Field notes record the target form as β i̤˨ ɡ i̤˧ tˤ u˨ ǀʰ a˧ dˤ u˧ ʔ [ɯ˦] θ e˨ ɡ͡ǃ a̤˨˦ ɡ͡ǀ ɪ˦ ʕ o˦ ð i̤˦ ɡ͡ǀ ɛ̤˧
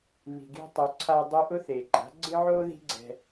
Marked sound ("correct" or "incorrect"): incorrect